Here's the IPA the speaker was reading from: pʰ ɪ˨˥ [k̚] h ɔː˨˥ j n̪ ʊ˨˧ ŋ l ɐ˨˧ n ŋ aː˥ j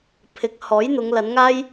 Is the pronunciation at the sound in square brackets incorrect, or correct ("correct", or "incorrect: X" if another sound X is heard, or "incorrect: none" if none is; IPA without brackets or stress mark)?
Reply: correct